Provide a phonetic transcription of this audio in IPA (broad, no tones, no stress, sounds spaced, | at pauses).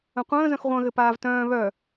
ə̃ qʷ ə̃ː z œ̃ x ʁʷ œ̃ ɣ ɘ p aː v t œ̃ː β œ